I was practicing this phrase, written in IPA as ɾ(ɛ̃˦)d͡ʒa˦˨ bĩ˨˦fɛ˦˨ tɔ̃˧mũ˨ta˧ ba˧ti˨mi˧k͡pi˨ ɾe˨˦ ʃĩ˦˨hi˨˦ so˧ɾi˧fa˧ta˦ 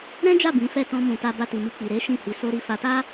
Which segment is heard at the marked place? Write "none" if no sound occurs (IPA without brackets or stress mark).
ɛ̃˦